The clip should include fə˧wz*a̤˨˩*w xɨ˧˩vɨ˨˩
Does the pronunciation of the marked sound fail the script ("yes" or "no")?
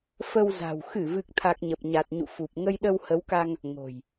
no